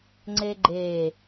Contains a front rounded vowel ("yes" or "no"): no